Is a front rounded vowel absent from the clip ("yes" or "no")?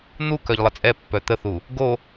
no